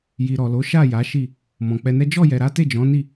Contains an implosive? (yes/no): no